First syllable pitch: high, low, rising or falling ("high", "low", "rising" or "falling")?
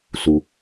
low